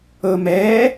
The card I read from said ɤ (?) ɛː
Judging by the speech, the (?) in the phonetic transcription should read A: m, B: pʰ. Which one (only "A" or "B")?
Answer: A